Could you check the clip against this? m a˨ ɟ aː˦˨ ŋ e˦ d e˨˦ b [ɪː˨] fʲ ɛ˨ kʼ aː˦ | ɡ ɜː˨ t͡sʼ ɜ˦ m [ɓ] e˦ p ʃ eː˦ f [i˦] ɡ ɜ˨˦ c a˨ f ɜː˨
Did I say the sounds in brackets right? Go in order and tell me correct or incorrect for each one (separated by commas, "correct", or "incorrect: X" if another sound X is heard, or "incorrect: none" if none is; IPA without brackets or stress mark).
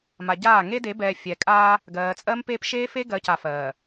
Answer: incorrect: ɛː˨, incorrect: p, incorrect: e˦